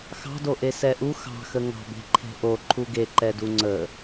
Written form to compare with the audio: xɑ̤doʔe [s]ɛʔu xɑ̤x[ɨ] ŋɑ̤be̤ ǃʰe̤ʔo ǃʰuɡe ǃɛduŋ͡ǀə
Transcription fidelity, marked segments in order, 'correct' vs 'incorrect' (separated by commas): correct, incorrect